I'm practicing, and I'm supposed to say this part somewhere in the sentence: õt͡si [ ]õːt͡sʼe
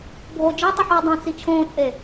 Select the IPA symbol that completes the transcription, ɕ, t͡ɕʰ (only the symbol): t͡ɕʰ